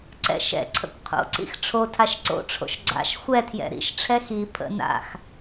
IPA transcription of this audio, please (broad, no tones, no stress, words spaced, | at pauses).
ǀɛ̰ʃɛ̰ǀʰə̰kʷ qʰo̰ǀḭx ʈ͡ʂʰotʰaʃ ǀo̰ʈ͡ʂʰo̰ʃ ɡ͡ǀa̰ʃ xʷɛtʰjɛ̰ ɾḭʃʈ͡ʂʰɛ xi pʰə̰ na̰x